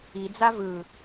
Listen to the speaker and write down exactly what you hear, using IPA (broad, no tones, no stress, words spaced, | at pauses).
id͡za vɯ